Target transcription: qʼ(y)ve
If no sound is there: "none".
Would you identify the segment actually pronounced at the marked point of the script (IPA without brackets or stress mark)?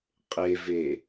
e